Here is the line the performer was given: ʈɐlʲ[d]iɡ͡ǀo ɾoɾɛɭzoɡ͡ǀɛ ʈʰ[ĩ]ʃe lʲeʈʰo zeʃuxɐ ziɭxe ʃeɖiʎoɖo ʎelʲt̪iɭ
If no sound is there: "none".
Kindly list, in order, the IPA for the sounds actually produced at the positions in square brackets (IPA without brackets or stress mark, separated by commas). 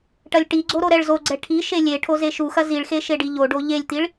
ʈ, i